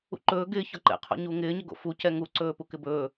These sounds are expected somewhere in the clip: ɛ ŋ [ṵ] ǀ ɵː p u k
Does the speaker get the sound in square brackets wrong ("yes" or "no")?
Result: yes